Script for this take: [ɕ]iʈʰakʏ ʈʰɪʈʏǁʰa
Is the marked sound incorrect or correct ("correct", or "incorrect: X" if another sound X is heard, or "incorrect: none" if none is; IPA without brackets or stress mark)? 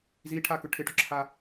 incorrect: z